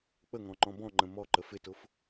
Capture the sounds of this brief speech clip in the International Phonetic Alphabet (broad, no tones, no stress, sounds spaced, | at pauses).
k͡p ə ŋ ɔ̃ ŋ͡ǃ ɔ̃ b ɔ̃ ŋ͡ǃ ə̃ m ɔ ǃ ə f ɪ t ʊ f